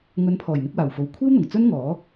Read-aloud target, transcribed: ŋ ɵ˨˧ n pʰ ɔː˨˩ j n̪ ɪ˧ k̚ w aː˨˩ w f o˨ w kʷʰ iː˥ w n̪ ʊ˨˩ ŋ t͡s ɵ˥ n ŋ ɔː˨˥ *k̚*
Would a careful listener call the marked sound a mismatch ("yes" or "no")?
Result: yes